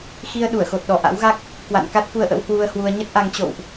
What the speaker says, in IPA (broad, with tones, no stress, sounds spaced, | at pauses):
x i˧ ə̯ ɗ u˧˩ ə̯ x o˨˩ t̚ ɗ ɔ˧˩ ʔ a̰˧˥ w ɣ a˦˥ k̚ | k w a̰˧˨ n k a˦˥ t̚ f u˧ ə̯ ʔ ə̰˧˥ w h w u˧ ə̯ h w u˧ ə̯ ɲ ə˦˥ t̚ ʔ a˧ ŋ t͡ɕ o̰˧˨ w ʔ